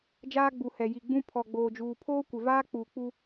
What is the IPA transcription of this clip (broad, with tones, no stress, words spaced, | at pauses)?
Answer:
d͡ʒaː˦ɡ͡bu˨ hɛ˨ ji˨ɡ͡bũ˦ pʰɔ˨ɡ͡boː˨d͡ʒuː˨ pʰoː˦kʷɪ˨vaː˦ k͡puː˨k͡pu˦